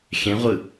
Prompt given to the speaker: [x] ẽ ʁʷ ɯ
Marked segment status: correct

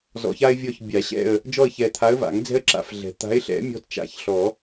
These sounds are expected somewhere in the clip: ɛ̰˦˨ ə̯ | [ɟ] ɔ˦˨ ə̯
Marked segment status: incorrect: d͡ʒ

